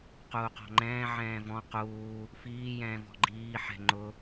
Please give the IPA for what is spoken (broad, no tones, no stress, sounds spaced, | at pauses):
q uː q ɔ̤ ŋ͡ǃ ɛ̃ː ʕ ɛ̃ː v ɔ̃ q uː | f iː j ɛ̃ː v ɔ̤ ɡ͡ǃ iː ħ ɛ̤ ŋ͡ǃ ʊ